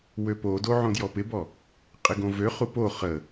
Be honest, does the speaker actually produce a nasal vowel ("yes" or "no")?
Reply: yes